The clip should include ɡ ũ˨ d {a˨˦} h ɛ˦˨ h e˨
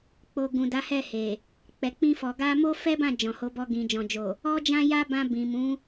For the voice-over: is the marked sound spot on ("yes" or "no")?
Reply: yes